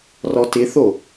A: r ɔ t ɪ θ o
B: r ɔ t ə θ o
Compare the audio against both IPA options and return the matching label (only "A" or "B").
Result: A